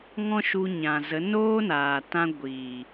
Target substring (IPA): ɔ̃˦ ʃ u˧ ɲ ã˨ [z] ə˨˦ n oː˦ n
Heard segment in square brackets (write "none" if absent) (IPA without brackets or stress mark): z